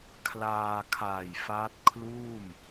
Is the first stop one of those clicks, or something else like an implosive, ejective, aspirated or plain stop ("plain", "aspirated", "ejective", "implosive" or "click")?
aspirated